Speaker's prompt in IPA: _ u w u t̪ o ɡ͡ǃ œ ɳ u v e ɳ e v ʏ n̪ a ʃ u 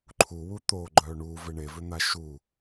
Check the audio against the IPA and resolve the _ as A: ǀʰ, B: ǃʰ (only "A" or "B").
B